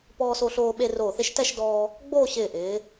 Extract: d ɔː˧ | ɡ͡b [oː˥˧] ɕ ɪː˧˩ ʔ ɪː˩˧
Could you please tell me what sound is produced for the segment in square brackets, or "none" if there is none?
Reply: oː˥˧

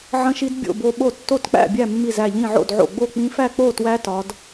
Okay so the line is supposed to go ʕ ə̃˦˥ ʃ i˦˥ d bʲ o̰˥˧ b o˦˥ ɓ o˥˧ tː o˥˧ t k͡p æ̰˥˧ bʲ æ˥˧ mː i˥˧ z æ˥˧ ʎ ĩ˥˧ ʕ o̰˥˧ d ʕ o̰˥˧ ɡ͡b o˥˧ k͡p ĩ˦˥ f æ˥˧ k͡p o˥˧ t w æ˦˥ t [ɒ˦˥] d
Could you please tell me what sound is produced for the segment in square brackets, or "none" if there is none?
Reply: ɒ˦˥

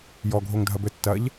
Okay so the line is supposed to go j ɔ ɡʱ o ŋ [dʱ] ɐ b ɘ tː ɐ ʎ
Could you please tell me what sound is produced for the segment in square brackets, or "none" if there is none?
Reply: dʱ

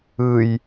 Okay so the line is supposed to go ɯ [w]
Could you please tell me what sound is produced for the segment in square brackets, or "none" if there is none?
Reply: j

